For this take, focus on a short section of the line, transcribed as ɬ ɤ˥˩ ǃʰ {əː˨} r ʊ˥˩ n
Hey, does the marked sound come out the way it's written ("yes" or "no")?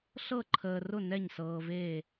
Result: yes